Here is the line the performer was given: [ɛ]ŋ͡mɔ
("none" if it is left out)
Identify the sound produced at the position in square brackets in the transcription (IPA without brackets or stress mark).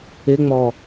ɪ